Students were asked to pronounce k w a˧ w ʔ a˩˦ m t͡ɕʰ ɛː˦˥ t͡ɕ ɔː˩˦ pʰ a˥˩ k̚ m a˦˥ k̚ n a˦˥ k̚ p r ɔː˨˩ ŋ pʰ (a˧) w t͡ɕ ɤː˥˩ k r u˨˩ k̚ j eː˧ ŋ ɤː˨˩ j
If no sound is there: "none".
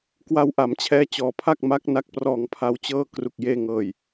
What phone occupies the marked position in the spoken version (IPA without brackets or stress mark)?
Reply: a˧